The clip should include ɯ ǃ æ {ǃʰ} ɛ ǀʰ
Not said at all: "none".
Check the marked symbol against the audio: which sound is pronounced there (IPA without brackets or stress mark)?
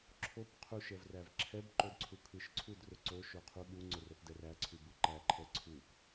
ǃʰ